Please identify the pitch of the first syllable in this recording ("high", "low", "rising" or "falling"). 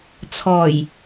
low